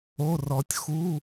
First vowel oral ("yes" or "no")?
yes